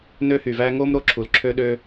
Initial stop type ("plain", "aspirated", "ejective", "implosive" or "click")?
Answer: click